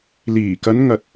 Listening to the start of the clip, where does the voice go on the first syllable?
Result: low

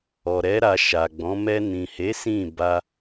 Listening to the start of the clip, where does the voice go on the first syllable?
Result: low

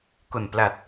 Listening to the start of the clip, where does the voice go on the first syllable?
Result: low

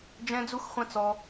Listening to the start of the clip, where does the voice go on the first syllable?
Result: high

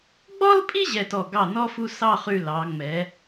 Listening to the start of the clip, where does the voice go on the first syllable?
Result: high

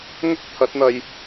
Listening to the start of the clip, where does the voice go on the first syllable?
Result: high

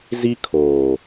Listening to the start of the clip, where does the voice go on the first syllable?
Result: high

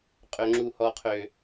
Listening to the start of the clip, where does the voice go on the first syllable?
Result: low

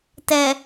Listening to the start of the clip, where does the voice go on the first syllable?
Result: low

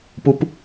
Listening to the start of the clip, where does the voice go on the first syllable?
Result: high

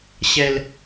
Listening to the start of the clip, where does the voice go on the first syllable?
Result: low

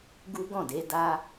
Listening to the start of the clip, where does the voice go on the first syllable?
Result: high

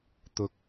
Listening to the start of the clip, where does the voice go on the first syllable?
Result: low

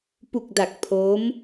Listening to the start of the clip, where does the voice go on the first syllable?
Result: low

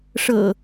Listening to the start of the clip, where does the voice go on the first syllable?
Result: low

